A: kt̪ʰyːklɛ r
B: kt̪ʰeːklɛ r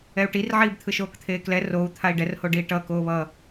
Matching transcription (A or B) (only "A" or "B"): B